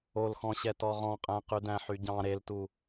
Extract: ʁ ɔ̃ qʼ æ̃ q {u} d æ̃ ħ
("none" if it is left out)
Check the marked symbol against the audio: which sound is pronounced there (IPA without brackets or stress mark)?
ʉ